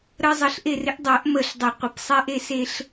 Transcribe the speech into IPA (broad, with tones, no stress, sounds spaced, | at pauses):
ɾ ə˦ zˤ ə˨˩˦ ɬ ʔ e˦˨ r ɪ˦ ʔ dˤ ɜ˨˩˦ ʔ m ə˨˩ ɬ dˤ ə˨˩ qʷ ɪ˨˩ p sˤ ɛ˦ ʔ e˦ s e˦ ɬ